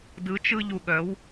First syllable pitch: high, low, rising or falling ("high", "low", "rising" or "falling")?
rising